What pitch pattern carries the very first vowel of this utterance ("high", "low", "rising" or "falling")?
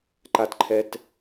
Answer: low